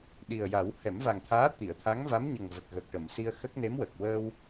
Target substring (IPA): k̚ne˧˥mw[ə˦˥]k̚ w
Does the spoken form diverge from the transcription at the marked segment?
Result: yes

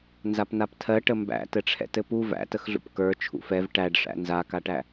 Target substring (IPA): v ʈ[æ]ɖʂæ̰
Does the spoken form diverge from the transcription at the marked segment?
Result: no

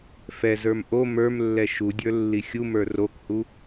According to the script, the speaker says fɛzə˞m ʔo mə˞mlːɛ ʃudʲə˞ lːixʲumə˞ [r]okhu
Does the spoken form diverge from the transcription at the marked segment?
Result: no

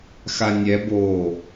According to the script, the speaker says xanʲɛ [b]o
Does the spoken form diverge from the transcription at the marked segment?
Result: no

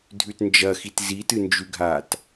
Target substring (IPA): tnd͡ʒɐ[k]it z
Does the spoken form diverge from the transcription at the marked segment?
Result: yes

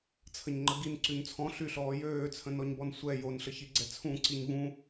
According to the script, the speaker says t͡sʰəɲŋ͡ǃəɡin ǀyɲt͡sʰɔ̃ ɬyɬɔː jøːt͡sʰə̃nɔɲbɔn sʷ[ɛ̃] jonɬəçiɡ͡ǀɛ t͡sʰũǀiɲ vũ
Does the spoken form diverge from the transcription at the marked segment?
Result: yes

